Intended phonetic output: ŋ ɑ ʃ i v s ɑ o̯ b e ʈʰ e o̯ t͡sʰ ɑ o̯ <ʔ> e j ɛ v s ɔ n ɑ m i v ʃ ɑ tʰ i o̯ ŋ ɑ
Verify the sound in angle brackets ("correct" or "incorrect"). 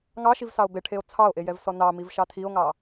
correct